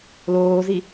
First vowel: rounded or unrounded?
rounded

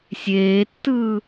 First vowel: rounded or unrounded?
unrounded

